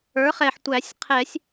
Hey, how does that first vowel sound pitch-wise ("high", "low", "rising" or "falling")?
rising